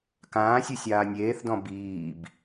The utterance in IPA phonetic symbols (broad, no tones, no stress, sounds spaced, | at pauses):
k ãː sʲ ɯ sʲ aː nʲ eː θ d ɔ̃ b iː b